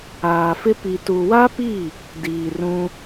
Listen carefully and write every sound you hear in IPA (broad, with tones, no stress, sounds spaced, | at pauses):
aː˨ f ɪ˦ p i˨ t u˨ w a˦ p i˦˨ | d iː˨ r ũ˦